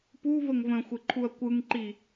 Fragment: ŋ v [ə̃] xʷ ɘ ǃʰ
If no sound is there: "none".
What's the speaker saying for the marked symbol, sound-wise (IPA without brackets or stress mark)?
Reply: ə̃